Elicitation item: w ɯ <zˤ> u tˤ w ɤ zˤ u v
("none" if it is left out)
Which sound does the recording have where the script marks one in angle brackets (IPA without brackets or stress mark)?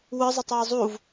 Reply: zˤ